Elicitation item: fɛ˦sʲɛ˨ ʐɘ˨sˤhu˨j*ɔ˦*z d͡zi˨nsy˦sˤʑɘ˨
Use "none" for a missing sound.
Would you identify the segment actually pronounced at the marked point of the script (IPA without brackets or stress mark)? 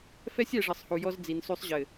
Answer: ɔ˦